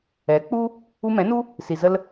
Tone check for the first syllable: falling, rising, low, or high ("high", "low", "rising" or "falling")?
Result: rising